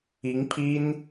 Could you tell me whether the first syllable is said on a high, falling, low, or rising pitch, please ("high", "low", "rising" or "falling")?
rising